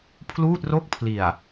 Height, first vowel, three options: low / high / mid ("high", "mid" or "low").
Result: high